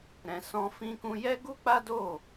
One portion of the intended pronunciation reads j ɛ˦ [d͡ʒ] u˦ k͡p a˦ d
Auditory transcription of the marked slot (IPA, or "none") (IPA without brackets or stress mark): ɡ